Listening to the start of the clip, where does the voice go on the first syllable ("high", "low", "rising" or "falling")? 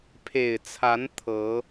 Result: low